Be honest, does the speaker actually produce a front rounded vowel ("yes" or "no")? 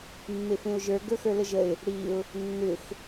yes